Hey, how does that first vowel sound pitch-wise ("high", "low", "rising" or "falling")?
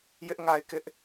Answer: high